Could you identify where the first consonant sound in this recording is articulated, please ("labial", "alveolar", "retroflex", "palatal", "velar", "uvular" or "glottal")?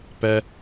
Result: labial